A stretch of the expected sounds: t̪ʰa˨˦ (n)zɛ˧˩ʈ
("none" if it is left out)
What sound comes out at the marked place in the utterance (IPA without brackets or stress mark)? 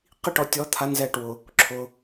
n